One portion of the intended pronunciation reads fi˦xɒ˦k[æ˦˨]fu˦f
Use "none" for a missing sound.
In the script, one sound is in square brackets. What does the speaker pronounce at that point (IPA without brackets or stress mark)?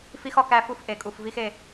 æ˦˨